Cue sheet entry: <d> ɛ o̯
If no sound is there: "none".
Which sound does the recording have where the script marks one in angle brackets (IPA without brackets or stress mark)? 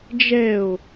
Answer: d͡ʒ